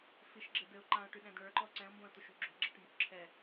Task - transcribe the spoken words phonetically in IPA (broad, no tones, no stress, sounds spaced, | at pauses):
f i ʃ ɡ͡ǁ ɘ d ɘ ʊ̯ ǃ ã ʊ̯ ʈ y ɗ ɛ̃ d ɳ ə˞ ǃ ɔ ǀ ɛ̃ ʊ̯ m b õ ə̯ t̪ u ʃ ṳ ɡ͡ǁ o̤ ɡ͡ǁ ɛ ʈ m b o̤ ǁʰ ɛ